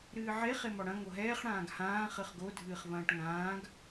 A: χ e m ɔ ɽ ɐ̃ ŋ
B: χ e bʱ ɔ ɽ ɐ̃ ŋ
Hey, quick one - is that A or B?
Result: A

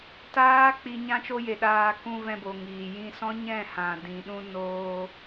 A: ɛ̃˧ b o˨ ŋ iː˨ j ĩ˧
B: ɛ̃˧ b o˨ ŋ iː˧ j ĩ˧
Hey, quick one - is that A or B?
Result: A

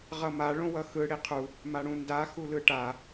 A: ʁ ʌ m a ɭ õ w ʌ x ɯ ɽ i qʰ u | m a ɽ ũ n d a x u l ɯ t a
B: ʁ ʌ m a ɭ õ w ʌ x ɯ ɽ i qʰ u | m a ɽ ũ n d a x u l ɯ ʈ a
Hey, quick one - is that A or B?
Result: B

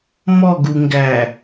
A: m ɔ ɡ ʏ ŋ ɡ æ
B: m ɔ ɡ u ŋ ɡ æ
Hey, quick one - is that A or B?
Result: B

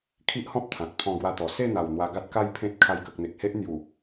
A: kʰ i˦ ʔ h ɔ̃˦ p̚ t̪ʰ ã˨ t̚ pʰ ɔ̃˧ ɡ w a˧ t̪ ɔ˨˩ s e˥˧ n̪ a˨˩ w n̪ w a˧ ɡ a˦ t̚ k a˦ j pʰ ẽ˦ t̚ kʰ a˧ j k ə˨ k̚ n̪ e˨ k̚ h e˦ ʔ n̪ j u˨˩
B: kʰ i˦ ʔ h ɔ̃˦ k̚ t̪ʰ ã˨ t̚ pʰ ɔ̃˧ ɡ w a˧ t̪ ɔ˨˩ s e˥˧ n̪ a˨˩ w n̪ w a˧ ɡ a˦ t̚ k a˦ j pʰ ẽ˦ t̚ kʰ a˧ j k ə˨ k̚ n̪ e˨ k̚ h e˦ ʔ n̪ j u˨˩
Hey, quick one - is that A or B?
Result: A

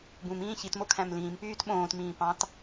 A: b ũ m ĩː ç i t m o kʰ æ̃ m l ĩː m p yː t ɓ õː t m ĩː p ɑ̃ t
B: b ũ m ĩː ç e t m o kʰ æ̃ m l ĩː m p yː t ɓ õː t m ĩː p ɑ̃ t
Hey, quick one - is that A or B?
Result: A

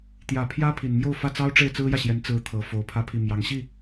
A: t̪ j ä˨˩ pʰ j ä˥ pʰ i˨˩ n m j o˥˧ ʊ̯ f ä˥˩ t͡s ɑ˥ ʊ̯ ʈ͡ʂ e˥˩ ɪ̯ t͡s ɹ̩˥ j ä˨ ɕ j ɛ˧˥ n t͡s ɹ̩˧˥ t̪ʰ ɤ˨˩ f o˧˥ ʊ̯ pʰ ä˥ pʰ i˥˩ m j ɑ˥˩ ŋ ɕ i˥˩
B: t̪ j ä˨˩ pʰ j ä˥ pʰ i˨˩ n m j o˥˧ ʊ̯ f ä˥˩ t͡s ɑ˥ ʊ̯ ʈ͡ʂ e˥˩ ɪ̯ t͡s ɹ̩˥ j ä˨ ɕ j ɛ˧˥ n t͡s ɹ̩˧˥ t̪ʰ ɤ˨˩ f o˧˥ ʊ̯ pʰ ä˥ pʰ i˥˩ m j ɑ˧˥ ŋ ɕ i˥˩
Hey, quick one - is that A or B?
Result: B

